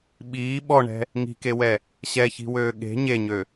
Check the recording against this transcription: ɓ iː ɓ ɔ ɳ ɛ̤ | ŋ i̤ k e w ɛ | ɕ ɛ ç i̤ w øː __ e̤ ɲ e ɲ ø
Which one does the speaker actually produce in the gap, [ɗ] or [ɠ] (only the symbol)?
ɠ